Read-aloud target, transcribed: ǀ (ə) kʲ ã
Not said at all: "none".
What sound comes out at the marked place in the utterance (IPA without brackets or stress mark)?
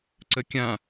ə